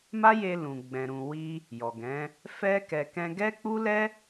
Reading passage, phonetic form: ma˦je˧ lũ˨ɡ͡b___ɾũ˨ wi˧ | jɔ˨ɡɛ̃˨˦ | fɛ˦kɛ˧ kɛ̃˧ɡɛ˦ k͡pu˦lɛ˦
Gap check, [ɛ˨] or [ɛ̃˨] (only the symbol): ɛ̃˨